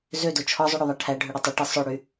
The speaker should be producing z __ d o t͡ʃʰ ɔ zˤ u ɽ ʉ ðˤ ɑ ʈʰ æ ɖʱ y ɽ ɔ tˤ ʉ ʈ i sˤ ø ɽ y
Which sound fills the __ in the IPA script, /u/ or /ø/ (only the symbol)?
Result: ø